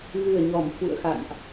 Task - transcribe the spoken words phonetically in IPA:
ɣ ɨ˨˩ ə̯ ɲ ɔ˧˩ m f ṵ˧˨ ə̯ x a̰˧˨ n ʔ

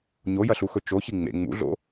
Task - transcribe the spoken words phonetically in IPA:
ɲ o j ɐ ɬ u x ɵ t͡ʃ o ç i ŋ͡m ḛ ŋ͡m ṵ ɮ o̰

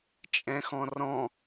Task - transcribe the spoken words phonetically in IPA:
t͡ʃʼ ɛ̃ x ɔ̃ r ɔ̃

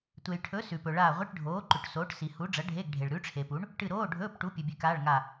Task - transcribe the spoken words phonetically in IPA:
tʷ e˨ j ʈʰ ɵ˨˥ s ʉ˨ p ɵ˨ ɭ aː˦˨ ʁʷ i˧˥˧ ʈ ɖʱ oː˨˥ ǃ ʉ˨ ʈ s oː˨˥ ʈ s i˨ h u˨˥ ɖ͡ʐ ɐ˨˥ ɖʱ e˧˥˧ ɡ ɖʱ e˨ ɭ ɾ ʉ˨˥ ʈ͡ʂʰ e˨ p u˨˥ ɳ | ʈ ɨ˦˨ ɾ oː˧˥˧ ɖʱ ɵː˧˥˧ p ʈ u˨˥ pʲ ʉ˨ bʲ ʉ˨˥ k aː˧˥˧ ɭ ŋ a˦˨

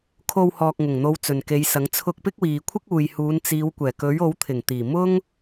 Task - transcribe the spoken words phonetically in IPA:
kʰ o˧ w h ɔː˨ k̚ ŋ ʊ˨˩ ŋ n̪ o˨˧ w t͡s ɵ˨ n k e˨˧ j s ɐ˨˥ ŋ t͡sʰ ʊ˧ k̚ p ɪ˥ k̚ w iː˨ kʷʰ ɪ˥ k̚ uː˨ j h uː˨˧ n t͡s iː˨˧ w kʷ ɛː˨˩ k ɵ˨˥ ɥ o˨˥ w t̪ʰ ɪ˨˩ ŋ t̪ iː˨˩ m ʊ˥ ŋ

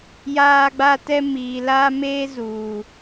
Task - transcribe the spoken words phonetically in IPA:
j aː˦ ɡ͡b a˦ t ɛ˦ m iː˨ l aː˦ m eː˦ z uː˨

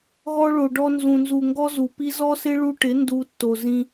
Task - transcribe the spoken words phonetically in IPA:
ɣ ɔ˧ ɭ o˨ ɖ ɔ˧ n z ũ˨ n z u˨ ŋ ɡ ɔ˦ z u˨ p i˦ z ɔ˦ s ɪ˦ ɭ u˧ ʈ ɪ˨˦ n d u˧ tː o˨ z ĩ˧

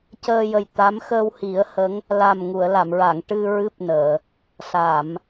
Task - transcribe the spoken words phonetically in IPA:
c əː˧ j ə˨˩ j t̪ a˧˥ m x əː˧ w h i˨˩˦ ə̯ h ə˧˥ ŋ | l a˨˩ m ŋ u˨˩˨ ə̯ l a˨˩˨ m ɹ a˨˩˨ ŋ ʈ ɨ˧ ɹ ɨ˦˥ p̚ n əː˨˩˨ | s a˨˩˨ m

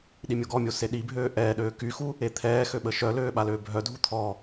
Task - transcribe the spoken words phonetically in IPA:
ɗ i mʲ o ɡ ɔ mʲ o s e ɗ i bʱ øː ʔ ɛː ɗ øː k y x u | e t̪ʰ ɛː x ø ɓ ə ʃ œ l øː ɓ a l øː bʱ œ dʱ u t̪ʰ ɔ

